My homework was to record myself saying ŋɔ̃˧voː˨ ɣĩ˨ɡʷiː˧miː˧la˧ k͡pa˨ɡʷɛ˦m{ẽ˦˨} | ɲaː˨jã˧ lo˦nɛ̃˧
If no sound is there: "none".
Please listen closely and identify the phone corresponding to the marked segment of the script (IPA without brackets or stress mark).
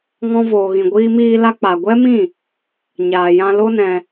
ĩ˦˨